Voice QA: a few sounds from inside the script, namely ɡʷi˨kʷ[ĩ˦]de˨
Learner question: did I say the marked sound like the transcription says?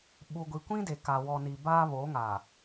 yes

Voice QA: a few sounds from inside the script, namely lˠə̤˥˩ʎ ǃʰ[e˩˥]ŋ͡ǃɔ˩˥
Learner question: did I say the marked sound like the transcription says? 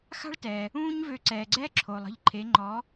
yes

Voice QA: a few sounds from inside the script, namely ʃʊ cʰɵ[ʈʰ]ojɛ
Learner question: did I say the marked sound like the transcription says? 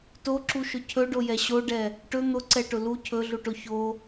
no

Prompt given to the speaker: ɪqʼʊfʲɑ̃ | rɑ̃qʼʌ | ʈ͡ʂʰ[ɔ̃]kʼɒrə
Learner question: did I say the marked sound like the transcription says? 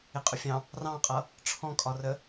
yes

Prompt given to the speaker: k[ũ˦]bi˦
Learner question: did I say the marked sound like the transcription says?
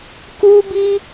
no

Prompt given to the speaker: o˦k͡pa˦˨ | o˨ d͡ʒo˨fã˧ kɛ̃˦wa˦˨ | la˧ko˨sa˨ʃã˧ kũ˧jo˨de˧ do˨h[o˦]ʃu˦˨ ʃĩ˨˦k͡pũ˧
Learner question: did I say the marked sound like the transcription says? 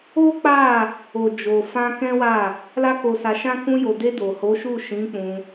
no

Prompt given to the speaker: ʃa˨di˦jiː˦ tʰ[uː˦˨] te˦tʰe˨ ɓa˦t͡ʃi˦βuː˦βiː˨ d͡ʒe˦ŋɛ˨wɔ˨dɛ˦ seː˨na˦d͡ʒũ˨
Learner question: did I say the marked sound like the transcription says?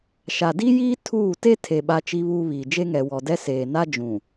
yes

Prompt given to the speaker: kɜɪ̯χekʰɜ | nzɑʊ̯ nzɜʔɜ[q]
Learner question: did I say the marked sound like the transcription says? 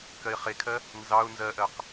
yes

